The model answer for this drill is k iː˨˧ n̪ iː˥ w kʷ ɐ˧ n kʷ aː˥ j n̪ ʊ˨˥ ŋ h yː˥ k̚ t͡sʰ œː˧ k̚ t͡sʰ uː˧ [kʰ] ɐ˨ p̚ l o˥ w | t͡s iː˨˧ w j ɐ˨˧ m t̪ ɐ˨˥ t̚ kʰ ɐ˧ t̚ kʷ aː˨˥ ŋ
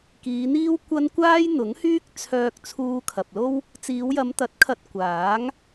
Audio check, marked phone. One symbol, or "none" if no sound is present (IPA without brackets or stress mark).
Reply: kʰ